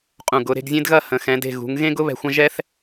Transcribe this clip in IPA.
qʼ ũ˧˩ ɡ ʊ˩˧ ɾ e̤˧ ɡ zʲ ẽ˥ d ɣ ɐ˥˧ h ə̃˩˧ x ɛ̃˩˧ d e̤˧˩ ɣ ṳ˩˧ ŋ ɣ ẽ˥ ɡ ʊ˥ β ɛ̤˧ xʷ ɐ̃˥ ʒ ɛ˥ θ

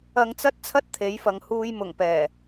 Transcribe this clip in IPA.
ɐ˧ ŋ t͡s ɐ˥ t̚ t͡sʰ ɐ˥ t̚ t̪ʰ e˨˥ j f ɐ˨ ŋ h uː˨ j m ʊ˨˩ ŋ p ɛː˨˩

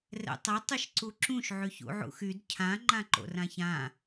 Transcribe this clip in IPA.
r ɛ̰ tˤ ɘ tˤ ʏ ʃ ǀ u ǁ ũ ʃ ʕ y ç ṵ ʕ ṵ x y d cʰ ã ŋ͡ǃ ã ǃ o̰ r ã ç ã

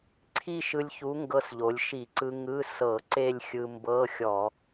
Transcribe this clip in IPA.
ǀʰ i˥˧ ʃ ɯ˧ lʲ ç u˨˥ ŋ ɡ ɤ˧ s ʎ o˩˧ lʲ ʃ i˧˩˧ ǀ ɯ˧ ŋ ɯ˧˥˧ s ɤ˧˩˧ ǀ e˥˧ lʲ xʲ ɯ˧ m b ɤ˧˥˧ xʲ ɔ˧˩˧

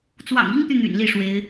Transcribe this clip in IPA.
t͡s w ɑ̰˨˩ ŋ i˥ ŋ t̪ y˨ n̪ y̰˨˩ n l i˥˩ ʂ w e˧˥ ɪ̯

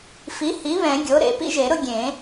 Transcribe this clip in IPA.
f i˩˥ h i˩˥ β ɛ̃˨˩˦ ɡʲ o˩˥ ɾ ḛ˨˩˦ p ḭ˦ ʒ e˨˩˦ ɾ ʊ˦ ɡʲ ẽ˨˩˦

